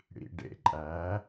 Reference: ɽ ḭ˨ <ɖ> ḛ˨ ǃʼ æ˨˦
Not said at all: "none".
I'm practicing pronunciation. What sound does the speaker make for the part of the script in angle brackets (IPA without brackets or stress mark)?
ɖ